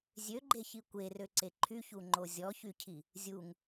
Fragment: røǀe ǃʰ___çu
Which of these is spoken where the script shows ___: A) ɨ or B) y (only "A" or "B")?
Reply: B